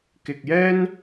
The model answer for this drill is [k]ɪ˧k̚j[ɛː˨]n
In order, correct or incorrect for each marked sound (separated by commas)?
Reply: correct, incorrect